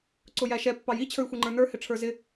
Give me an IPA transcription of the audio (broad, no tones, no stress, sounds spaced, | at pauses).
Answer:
ǀ ʊ j æ ʃ ɛ pː ɑ j i t͡ɕʰ ə˞ j xʷ i ŋ͡ǃ ə˞ n ə˞ h ɪ ʈ͡ʂʰ ə˞ z ɪ